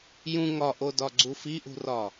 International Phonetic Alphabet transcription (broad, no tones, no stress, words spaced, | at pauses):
jũ ŋɒʔodɒɡ͡ǀu fiʔṳrɒ